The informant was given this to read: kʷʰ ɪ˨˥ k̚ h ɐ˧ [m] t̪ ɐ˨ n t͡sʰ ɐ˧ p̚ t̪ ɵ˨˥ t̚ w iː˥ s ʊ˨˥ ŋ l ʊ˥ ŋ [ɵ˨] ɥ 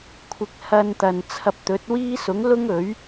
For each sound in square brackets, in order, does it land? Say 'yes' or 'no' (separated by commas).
no, no